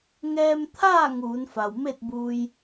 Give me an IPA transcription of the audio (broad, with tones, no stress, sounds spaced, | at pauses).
ŋ ɛː˧ m t̪ʰ aː˥˨ ŋ uː˩˧ n f a˩ w m e˥˨ t̚ b uː˧ j